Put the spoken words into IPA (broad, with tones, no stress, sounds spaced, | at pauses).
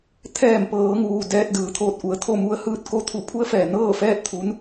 t̪ʰ ɛː˧˩ m p ɤː˩˧ ŋ uː˩ d ɛː˧ t̚ d ɯː˩˧ t̪ʰ oː˧ t̚ ʔ u˩˧ ə̯ t̪ʰ o˥˨ m u˧ ə̯ h ɯː˥˨ t̚ k o˧ t̪ʰ u˧˩ pʰ u˧˥ ə̯ f ɛː˩ n ɤː˥˨ f ɛː˥˨ t̚ t̪ʰ u˧˥ n